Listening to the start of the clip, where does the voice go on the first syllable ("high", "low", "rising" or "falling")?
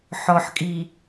low